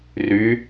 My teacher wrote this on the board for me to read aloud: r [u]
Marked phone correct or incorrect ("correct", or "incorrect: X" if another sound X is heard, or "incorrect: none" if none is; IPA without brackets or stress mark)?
incorrect: y